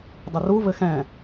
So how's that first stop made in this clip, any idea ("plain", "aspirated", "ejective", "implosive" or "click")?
plain